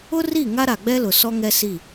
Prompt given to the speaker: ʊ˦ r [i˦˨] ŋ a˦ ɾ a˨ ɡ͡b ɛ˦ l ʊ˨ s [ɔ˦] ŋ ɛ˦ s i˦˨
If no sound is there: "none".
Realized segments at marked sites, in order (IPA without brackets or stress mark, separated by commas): i˦˨, ɔ˦